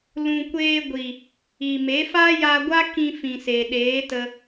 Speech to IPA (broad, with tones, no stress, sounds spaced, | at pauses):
l ũ˨ kʷ eː˧ ɡʷ i˨ | i˨ m e˨˦ f a˦ j a˧ ɡʷ a˦ k ĩ˧ f ĩ˨ s e˨ ɗ eː˨˦ t ə˧